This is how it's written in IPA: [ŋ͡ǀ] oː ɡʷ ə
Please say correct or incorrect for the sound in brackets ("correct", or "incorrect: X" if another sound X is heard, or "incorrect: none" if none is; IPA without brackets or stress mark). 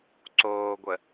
incorrect: ǀ